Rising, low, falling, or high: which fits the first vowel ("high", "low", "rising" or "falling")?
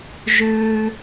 high